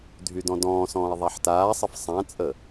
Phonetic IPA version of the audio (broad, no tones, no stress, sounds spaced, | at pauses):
dʱ y d ɔ̃ d ɔ̃ː s ɔ̃ː e̯ ðˤ a ħ t aː sˤ ə f sˤ ã t͡sʼ ə